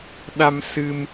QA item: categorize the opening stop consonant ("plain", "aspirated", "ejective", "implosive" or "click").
implosive